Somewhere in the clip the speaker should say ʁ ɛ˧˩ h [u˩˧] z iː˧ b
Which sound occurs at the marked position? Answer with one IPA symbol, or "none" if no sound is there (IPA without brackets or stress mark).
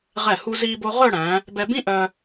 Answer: u˧